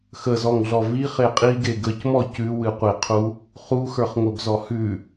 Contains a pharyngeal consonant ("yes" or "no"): no